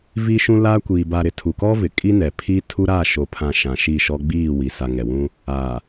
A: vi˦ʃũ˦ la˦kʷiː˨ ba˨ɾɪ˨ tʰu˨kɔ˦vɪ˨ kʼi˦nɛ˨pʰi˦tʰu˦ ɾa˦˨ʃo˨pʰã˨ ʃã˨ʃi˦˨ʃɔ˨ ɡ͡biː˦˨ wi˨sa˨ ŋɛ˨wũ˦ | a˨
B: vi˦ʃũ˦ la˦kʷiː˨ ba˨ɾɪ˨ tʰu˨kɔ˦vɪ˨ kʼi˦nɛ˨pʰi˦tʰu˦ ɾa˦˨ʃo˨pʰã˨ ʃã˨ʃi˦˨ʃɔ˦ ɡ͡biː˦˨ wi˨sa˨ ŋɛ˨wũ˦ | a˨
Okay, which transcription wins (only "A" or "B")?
B